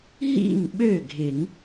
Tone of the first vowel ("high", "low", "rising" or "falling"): falling